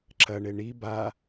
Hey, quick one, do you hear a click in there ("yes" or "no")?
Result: yes